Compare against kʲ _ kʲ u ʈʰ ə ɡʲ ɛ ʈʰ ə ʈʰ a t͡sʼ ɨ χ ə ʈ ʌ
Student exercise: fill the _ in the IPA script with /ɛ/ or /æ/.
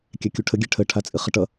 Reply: æ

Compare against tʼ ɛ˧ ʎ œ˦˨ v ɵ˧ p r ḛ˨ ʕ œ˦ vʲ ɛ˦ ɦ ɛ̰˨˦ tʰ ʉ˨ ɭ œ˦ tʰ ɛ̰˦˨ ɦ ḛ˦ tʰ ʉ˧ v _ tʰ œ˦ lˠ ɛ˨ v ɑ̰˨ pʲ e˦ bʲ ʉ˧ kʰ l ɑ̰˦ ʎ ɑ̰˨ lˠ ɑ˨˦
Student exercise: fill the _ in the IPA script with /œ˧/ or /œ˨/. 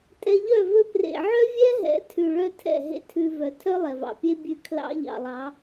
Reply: œ˨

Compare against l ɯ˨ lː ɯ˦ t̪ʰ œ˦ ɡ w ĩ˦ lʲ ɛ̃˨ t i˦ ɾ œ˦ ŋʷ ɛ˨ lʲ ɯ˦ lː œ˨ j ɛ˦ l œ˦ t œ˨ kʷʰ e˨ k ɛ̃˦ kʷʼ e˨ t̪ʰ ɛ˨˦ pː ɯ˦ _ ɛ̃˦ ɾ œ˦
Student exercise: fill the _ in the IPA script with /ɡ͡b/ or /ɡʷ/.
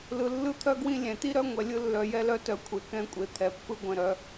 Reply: ɡʷ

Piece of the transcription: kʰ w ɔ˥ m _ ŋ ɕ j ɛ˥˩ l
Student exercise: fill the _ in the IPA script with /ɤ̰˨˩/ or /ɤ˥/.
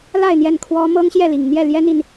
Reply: ɤ˥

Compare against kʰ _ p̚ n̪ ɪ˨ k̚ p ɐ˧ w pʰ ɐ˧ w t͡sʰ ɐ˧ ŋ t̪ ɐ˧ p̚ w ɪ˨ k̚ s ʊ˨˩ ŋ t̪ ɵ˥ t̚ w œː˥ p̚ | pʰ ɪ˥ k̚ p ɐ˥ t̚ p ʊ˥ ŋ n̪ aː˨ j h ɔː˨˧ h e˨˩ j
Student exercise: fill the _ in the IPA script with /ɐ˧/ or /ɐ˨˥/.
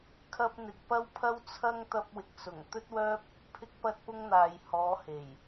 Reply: ɐ˧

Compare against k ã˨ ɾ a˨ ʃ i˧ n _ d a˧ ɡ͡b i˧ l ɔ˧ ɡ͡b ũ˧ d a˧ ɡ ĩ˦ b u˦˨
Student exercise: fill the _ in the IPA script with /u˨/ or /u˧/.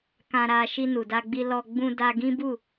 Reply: u˨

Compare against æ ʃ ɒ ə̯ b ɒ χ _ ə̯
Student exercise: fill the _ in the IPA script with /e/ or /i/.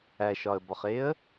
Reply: e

